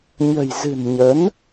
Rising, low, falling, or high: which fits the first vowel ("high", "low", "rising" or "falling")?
low